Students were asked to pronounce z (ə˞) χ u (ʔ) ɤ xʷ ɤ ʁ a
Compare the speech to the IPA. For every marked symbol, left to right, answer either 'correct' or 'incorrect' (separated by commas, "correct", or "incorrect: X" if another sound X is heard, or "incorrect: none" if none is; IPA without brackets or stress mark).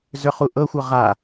correct, correct